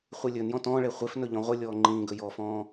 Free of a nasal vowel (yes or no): no